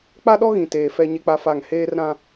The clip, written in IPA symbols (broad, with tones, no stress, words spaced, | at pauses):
k͡pa˦ɗɔ˦ɣĩ˨ teː˨fɛ˦ ɲe˦k͡pa˦fa˦˨ŋ heː˦rɾã˦